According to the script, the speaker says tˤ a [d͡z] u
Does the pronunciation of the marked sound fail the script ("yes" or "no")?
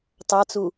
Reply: yes